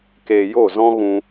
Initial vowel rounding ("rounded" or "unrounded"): unrounded